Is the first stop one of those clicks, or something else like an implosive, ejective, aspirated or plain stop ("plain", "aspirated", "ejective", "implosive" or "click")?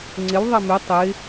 click